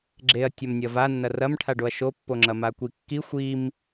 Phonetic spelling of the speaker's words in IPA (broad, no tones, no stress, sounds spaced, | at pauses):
ɡ͡ǁ e ɐ̯ tʲ ɐ m nʲ ɐ v a nː ɐ r ɐ m ʈʰ a ɖ o ɐ̯ ʃ o pː o ŋ͡ǁ ɐ m a kʷ i kː i xʷ i m